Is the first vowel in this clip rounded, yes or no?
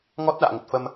yes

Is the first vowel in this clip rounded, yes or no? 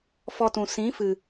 yes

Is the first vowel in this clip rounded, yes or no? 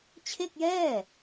no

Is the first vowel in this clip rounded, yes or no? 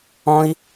yes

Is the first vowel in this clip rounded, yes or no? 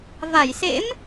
no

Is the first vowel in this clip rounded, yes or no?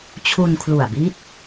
yes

